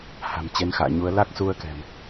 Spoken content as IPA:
ha̤˨˩mt͡ɕe˨˦nxa̰ː˧˨ɲu˨˦ə̯ la˦˥k̚su˧ə̯ kɛ̤˨˩m

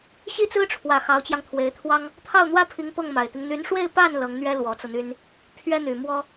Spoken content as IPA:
ɕi˥˩t͡sɹ̩˥ʈ͡ʂʰwä˨˩ xɑ˧˥ʊ̯t͡ɕjɑ˧ŋt̪ʰwe˧˥ɪ̯t̪ʰwɑ˥ŋ | t̪ʰɑ˥˩ʊ̯n̪wä˥pʰi˧˥ŋ pɤ˥˩ŋma˨˩ɪ̯t̪i˦ŋ n̪y˧˥nʂwe˥˧ɪ̯pa˥˩n lɤ˧˥ŋn̪ɥɛ˥ lwɔ˧˥t͡sɤ˧n̪y˥n | pʰɥɛ˥n̪y˨˩mwɔ˥

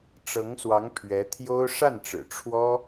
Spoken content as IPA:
ʈ͡ʂɤ˧˥ŋswɑ˧˥ŋ pʰɥɛ˧˥t̪ʰjo˥ʊ̯ ʂa˥˩nʈ͡ʂɻ̩˨˩ ʈ͡ʂʰwɔ˥

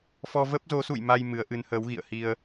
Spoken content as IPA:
fɔ˧ və˦˥p̚zo˨˦sṵ˧˨j ma˧j mɨ˨˦ə̯ʔɨ˨˦nhəː˨˦wɣḭ˧˨ə̯ hi˧ə̯

